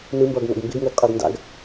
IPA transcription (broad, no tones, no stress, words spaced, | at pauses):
nɯmbʌːɡŋo̰ɡ mbeɡŋɘːɡqʼɘːɡ nda̰ɡ